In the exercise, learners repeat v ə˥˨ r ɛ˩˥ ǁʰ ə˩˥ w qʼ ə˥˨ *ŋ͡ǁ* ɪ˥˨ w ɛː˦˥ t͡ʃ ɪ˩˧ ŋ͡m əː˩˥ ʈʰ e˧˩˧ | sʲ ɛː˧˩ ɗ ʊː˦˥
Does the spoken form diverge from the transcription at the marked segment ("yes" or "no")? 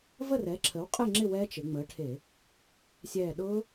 no